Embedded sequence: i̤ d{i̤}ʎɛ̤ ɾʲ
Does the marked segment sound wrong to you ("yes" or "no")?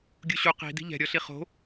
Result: no